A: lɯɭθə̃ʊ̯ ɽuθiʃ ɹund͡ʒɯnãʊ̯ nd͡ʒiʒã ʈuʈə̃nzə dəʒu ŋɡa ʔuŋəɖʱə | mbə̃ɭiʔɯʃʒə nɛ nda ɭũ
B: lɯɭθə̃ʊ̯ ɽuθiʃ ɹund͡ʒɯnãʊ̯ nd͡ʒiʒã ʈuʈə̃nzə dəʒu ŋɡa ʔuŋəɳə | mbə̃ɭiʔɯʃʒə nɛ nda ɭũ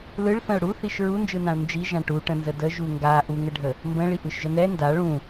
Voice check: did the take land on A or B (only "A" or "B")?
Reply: A